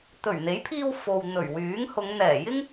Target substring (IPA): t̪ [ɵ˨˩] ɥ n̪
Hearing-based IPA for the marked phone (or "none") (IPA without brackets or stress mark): ɵ˨˩